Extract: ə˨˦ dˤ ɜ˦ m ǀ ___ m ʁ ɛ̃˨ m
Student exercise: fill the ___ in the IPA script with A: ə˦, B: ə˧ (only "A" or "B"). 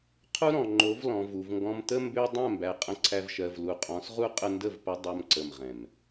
B